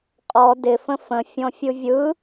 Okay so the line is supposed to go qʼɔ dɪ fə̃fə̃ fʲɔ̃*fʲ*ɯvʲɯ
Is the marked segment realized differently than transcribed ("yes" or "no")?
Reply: no